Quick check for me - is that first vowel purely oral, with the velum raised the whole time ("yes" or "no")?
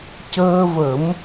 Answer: yes